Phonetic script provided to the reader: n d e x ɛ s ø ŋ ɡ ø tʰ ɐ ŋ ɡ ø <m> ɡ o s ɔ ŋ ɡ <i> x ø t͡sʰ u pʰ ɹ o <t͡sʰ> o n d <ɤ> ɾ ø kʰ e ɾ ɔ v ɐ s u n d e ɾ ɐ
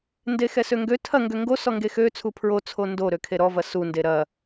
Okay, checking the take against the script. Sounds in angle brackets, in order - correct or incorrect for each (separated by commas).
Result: incorrect, incorrect, correct, incorrect